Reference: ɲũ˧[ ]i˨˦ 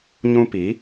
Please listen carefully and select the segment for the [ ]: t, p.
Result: p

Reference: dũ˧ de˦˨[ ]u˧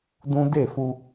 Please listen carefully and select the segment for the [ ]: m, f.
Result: f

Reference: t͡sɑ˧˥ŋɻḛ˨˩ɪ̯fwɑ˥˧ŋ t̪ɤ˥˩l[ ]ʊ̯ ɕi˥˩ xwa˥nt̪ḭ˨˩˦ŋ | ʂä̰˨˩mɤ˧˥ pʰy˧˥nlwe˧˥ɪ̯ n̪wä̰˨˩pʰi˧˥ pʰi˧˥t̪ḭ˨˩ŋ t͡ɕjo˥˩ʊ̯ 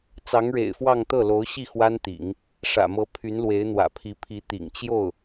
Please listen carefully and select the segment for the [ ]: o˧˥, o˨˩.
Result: o˧˥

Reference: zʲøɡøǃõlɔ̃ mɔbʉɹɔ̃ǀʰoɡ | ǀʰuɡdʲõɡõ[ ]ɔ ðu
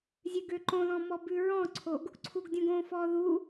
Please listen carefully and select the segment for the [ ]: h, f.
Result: f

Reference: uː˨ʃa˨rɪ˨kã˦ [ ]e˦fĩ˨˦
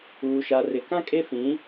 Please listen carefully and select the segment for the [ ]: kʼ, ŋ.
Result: kʼ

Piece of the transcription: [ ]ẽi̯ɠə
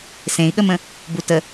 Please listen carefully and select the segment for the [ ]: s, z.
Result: s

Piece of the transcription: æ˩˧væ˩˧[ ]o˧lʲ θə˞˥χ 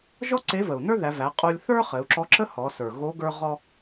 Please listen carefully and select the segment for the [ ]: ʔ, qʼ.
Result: qʼ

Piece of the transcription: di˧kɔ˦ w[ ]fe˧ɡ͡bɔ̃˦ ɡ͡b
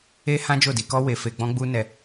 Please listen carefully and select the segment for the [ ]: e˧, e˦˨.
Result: e˧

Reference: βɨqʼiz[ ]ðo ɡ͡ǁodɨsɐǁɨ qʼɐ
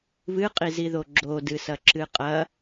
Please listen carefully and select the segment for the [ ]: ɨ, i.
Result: i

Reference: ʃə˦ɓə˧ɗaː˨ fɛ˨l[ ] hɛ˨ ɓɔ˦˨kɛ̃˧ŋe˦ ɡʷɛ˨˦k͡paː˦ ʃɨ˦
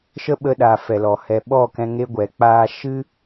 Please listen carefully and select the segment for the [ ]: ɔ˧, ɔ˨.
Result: ɔ˨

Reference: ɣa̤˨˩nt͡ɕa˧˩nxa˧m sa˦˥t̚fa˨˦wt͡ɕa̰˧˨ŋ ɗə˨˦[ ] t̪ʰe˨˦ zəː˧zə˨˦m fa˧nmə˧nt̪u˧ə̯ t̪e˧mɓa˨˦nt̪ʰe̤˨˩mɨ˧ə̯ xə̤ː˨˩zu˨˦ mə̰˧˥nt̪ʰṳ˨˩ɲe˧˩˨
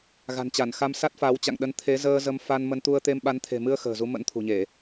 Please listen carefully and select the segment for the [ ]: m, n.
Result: n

